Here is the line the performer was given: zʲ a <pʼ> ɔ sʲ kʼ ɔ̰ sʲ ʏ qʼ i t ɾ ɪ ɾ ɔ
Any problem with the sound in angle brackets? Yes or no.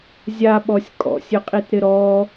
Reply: yes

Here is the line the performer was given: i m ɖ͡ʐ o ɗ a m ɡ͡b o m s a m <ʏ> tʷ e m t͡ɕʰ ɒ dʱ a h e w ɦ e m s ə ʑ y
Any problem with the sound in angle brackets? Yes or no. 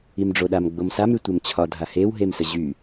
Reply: yes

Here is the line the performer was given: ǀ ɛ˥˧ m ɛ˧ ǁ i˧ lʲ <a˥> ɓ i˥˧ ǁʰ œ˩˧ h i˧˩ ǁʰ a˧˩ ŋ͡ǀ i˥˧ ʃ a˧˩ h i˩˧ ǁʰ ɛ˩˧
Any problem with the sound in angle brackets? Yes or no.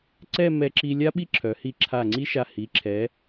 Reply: no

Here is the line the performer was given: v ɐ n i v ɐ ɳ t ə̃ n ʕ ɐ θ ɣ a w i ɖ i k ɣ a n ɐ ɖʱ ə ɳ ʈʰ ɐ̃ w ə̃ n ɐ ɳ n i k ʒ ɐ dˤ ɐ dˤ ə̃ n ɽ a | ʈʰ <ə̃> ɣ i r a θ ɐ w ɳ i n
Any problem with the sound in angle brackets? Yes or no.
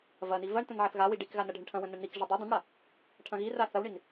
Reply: yes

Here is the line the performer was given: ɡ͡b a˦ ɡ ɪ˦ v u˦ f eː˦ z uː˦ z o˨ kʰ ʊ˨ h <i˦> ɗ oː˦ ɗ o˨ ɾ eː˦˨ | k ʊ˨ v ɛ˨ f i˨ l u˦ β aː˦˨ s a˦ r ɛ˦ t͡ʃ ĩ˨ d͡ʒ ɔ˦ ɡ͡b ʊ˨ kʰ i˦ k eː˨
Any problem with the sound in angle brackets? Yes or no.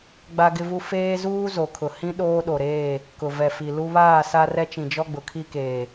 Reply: yes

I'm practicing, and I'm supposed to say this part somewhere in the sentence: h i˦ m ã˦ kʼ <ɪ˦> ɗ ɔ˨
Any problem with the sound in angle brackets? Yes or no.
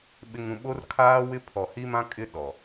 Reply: no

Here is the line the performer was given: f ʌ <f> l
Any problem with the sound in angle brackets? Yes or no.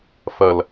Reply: yes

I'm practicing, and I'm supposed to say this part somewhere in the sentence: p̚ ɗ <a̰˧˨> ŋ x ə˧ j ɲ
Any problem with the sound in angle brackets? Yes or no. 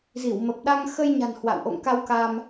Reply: yes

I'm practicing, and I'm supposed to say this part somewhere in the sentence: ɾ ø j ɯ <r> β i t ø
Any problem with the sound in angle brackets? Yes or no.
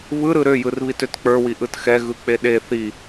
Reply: no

